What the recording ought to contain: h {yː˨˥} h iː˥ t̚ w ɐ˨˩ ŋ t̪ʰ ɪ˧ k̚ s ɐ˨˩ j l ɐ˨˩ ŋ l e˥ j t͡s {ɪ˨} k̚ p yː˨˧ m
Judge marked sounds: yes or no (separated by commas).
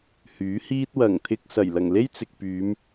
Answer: yes, yes